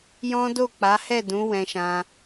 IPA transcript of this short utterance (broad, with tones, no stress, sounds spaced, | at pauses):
j ɔ̃˦ d o˦˨ k͡p a˨˦ h ɛ˦˨ d ũ˨˦ w ɛ̃˧ ʃ ã˧